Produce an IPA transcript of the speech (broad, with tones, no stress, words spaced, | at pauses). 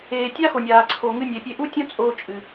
eː˩tʲa˦˥xo˩nʲaː˩ ǀʰo˩ŋɨ˧nʲe˩pʲe˧ ʔu˦˥tʲõ˦˥ t͡sʼoː˧t͡ʃʼɨ˩